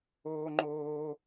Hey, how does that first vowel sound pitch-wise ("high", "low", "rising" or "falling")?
high